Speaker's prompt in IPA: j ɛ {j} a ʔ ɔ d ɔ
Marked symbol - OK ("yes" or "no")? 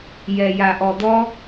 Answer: yes